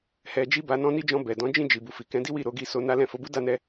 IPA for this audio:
h ɛ˧ d͡ʒ i˦ b a˧ n ɔ̃˦ n i˦ d͡ʒ ɔ̃˧ b ɛ˨ d ɔ̃˨˦ d͡ʒ ĩ˦˨ d͡ʒ i˨ b u˨ f i˨ k ɛ̃˨˦ d i˦ w i˦˨ ɾ o˧ ɡ i˧ s o˧ n a˦ l ɛ̃˦˨ f o˨˦ b u˦ d a˦˨ n ɛ˧

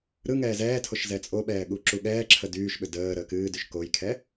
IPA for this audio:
ɾ ɯ ŋ ɛː z ɛː tʰ o ʃ z ɛ t͡sʼ o ɓ ɛː ɠ u ǁ u ɠ ɛː ǁʰ ə d yː ʃ ɓ ʏ d əː ɾ əː k ɨː d y ʃ k o j kʰ ɛ

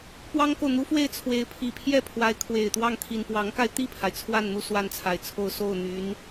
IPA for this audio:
p w ɑ˥ ŋ k o˨ ʊ̯ n̪ u˥ f w e˥˩ ɪ̯ t͡sʰ w e˧˥ ɪ̯ pʰ i˨˩ pʰ j ɛ˥˩ pʰ w a˧˥ ɪ̯ kʰ w e˨˩ ɪ̯ t̪ w ɑ˥˩ ŋ t̪ʰ i˨˩ n p w ɑ˧˥ ŋ k a˧ ɪ̯ t̪ i˥˩ pʰ a˩ ɪ̯ t͡sʰ w a˥˧ n n̪ u˥˧ s w a˥˩ n t͡sʰ a˨˩ ɪ̯ t͡sʰ o˥˧ ʊ̯ s o˥˩ ʊ̯ n̪ y˧˥ n

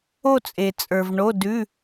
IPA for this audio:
o˥˧ t͡sʼ e˨ t͡sʼ ə˞˨ v ɳ o˧˥˧ d ʉ˧˥˧

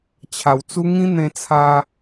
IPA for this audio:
t͡ɕʰ a˨˩ w t͡s u˦ ŋ ĩ˦ n̪ ẽ˧ t͡sʰ a˧

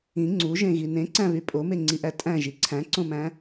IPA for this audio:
ĩ ŋ͡ǀ u ʒ ẽ ɣ i n ẽ ǀ æ̃ β y pʼ o m e ŋ͡ǀ i ʔ æ tʼ æ̃ ʒ i ǀʰ æ̃ ǀ õ m æ̃

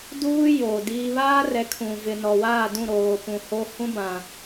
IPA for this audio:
d uː˦ j oː˨ d iː˦ β aː˦ r ɛ˨˦ kʰ ũ˨ v ɪ˨ n ɔ˨ w aː˦˨ d ũ˦˨ ɾ oː˨ p ũ˨ h o˦ h ũ˦ b ã˨

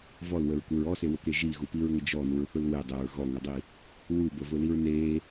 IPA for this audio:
v ɔ l w ə ɹ k u ɹ ɔ s e w ʊ k e ʒ i ɣ u p i ɹ ŋ ə d͡ʒ ɔ n u ɹ θ ʊ l w e dˤ e ɹ ɣ ɔ ŋ ʊ dˤ i | w u b ə v ʊ l i ɹ n e

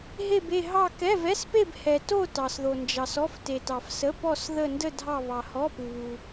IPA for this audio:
ɦ e˥˧ b e˥˧ ɦ ɑ˥˧ k ɛ˧˥˧ v ɛ˧˥˧ s p e˥˧ b h ɛ˨ t o˥˧ t ɑ˨ s ð o˨ n d͡ʒ ɑ˨ s ɔ˧˥˧ f t e˨ t ɑ˨ f s ə˧˥˧ p ɔ˥˧ s ð ə˥˧ n d ə˥˧ dʱ ɑ˥˧ β ɑ˨ h ɔ˧˥˧ p u˨ β u˨

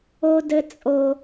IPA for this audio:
o˥ d ɘ˥ t͡sʼ o˦

